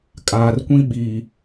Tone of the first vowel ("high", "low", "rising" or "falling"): low